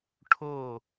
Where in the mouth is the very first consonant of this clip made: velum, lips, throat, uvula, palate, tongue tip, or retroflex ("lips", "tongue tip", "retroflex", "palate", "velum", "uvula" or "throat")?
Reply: retroflex